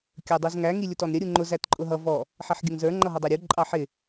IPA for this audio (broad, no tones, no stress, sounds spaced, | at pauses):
kʲ ə˞ dˤ u z ŋ æ ŋ i lʲ ʊ t ɔ n ɾʲ ə ɾʲ u ŋ͡ǃ ʊ z æ t ǃʼ ʊ ɦ ʌ v ɔ | ħ ɛ ħ ɡʲ ə ŋ z ə˞ ŋ͡ǃ ʌ ɦ ʌ dˤ ɑ ɾʲ u ǃʼ ɑ ħ ɪ